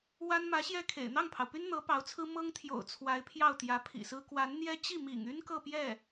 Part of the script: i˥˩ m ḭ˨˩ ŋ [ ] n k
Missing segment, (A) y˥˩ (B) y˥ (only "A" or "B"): B